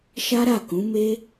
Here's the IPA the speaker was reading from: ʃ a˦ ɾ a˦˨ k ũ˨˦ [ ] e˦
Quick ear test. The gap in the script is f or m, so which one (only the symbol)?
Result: m